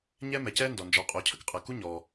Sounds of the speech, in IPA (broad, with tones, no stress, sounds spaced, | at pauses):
ɲ ɛː˥ m ɛ˩ c ɛː˥ n d ɔ˩ n d͡ʒ ɔ˩ qʼ oː˩ cʰ ə˥ k qʼ əː˩ k u˥ ɲ ɔː˩